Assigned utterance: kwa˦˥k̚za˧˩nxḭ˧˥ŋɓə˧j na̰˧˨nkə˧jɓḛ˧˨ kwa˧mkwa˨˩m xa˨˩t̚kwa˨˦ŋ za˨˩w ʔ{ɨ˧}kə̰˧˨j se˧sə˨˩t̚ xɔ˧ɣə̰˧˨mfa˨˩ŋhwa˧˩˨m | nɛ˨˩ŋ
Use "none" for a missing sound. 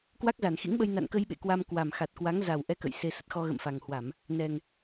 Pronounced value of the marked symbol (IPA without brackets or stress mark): ɛ˧